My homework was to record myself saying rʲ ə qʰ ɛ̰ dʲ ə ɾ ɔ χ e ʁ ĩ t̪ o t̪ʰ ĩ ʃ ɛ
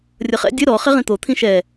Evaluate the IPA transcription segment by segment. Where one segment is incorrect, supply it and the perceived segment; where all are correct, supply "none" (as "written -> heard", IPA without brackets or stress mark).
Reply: qʰ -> χ